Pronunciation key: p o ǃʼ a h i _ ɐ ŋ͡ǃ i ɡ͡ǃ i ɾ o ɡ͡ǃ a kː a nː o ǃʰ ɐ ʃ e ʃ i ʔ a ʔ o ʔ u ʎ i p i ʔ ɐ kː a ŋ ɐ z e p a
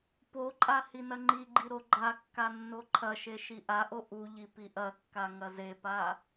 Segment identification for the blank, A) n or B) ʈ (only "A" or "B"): A